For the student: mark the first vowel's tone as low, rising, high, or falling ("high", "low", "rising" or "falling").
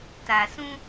low